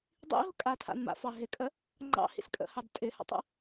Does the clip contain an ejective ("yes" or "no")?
yes